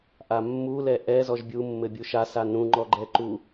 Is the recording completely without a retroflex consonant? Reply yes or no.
yes